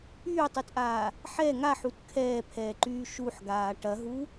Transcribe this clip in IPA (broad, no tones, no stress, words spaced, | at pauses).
yːtˤytʔaː | ħɛ ŋaħut kʰɛːpʰɛːǃyː ʃuħɡaː ʈɐɦu